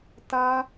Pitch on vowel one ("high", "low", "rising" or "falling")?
high